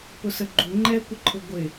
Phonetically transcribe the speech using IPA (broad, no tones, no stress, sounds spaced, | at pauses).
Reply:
p ʊ s ə ɡ͡ǃ u ŋ͡ǃ ɛ kʷ ə ǃʰ ʊ ɡʷ ɪ